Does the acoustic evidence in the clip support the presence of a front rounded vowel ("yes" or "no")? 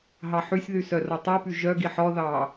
yes